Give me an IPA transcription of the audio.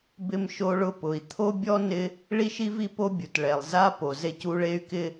b ɪ˥ m ʃ o˥ ɭ ʊ˥ p ʊ˩ i̯ t̪ʰ o˥ bʲ ɔ˥ n ɪ˥ | ɭ i˥ ʃ i˥ v i˥ p o˥ bʲ u˩ t ɭ ɛ˩ lˠ z a˥ p o˩ z e˥ c u˥ ɭ e˥ y̯ k ɪ˥

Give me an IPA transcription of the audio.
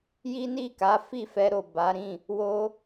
j i˦ n i˦˨ k a˨˦ f i˦˨ f ɛ˧ ɾ o˨ b a˨˦ ɾ ĩ˦˨ | w o˦

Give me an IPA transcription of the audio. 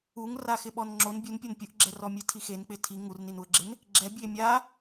u ŋ r a x ɪ ɓ ɔ n ŋ͡ǁ o n bʲ u n pʲ ɔ n pʲ ʊ ʔ ɡ͡ǁ ɛ r ɔ mʲ e tʰ i x e n k͡p ɪ tʰ i ŋ u r n i n u ə̯ ɡ͡ǁ ɪ n | ɡ͡ǁ ɛ bʲ e mʲ a

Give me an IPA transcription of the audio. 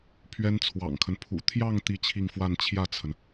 pʰ ɥ ɛ˥ n t͡sʰ w ɑ̰˨˩ ŋ kʰ ə˦ n pʰ ṵ˨˩ t̪ʰ j ɑ˥˧ ŋ t̪ i˥˧ t͡ɕʰ i˥˧ ŋ f w a˥˧ n t͡ɕʰ j ä˥˩ t͡sʰ ə˩ n

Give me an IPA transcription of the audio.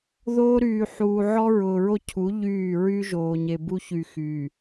ð oː˦ ɾ yː˨ ħ uː˨ ʕ ɔ˦ ɹ ʊː˨ ɹ o˦ cʰ u˨˦ ʎ yː˦˨ ɹ y˦ ʒ oː˨ ɲ e˨ b u˦ ç y˨ x yː˨

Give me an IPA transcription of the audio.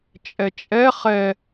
t͡ʃʼ ɛ t͡ʃʼ ɛ χ ɛ

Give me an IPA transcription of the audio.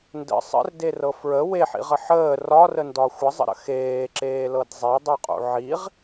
n d ə̰ sˤ ə̰ r d e r ɤ f ɹ ə w e ħ ḭ ʁ ə ħ əː r ɒ r ə n d ɒ xʷ ə zˤ ə̰ ɾ ə̰ x eː ǁ eː l ɤ d zˤ e dˤ ə˞ qʼ ṵ ʕ i ʁ

